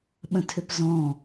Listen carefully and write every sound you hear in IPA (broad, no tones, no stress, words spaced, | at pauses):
ɓə̃tʰʏpzɔ̃